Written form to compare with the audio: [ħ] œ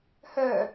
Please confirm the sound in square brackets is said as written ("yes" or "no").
no